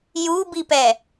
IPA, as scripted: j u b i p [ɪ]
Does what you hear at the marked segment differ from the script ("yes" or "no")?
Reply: yes